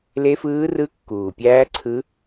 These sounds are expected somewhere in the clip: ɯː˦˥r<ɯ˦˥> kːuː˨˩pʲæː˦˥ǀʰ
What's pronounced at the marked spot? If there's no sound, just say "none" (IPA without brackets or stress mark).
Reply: ɯ˦˥